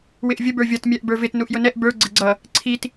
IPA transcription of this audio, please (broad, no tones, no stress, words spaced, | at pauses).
wɪʔvʲə bə˞vʲʌt mʲæʔbə˞vɪt nuʔjʊnɛʔ bə˞ ɡ͡ǀɪɡ͡ǀʌ | ǀʰit